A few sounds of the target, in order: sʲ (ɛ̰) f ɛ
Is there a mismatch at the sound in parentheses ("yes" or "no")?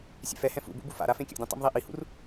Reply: no